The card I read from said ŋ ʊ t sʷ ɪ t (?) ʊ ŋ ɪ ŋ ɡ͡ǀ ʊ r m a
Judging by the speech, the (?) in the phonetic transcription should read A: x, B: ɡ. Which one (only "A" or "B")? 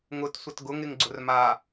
B